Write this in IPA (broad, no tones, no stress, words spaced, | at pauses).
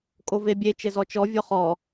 kʼovebʲe t͡ʃɘzɔt͡ʃɔ vʲɔχɔ